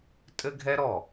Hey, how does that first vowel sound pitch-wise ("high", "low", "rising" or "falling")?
high